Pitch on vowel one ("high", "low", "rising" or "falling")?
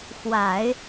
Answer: low